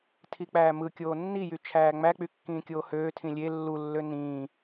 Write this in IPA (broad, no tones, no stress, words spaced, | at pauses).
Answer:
tʰik͡pæːmɯkʲoː nːijy t͡ʃʰæːŋ͡mæk͡py kːĩːkʲoːhøː tʰĩlʲe lːulːø nĩː